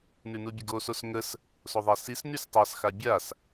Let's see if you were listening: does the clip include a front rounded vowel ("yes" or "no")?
yes